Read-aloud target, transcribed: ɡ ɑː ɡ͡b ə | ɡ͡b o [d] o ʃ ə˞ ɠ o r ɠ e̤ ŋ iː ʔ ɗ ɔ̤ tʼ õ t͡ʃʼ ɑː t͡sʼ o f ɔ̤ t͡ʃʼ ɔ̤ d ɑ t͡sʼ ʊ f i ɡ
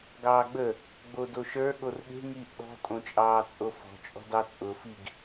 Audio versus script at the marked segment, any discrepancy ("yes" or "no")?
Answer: no